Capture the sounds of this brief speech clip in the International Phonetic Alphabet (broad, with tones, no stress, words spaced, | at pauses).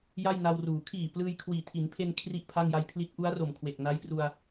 ja˥˩jna˧wruː˩˦ kʰiː˨˩ plɯː˧jkʰwiː˨˩tʰi˩˦npʰe˧n kʰri˥˩ʔpʰa˥˩ŋ ja˧j pʰli˦˥t̚ʔu˦˥a̯ro˨˩m kʰwe˨˩k̚na˦˥jpru˧a̯